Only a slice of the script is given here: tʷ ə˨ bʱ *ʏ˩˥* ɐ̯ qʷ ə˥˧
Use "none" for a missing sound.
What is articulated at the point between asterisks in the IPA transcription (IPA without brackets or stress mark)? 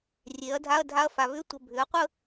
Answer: ʏ˩˥